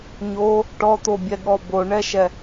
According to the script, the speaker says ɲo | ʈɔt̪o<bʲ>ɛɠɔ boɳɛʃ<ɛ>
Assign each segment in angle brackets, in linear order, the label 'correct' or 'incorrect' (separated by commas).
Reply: correct, correct